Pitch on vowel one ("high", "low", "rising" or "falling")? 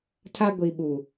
high